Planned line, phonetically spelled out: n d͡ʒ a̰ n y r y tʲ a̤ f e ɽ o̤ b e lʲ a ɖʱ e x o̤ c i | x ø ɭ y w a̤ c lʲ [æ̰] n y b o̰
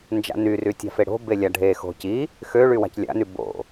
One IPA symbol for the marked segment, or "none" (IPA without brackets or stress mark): a̰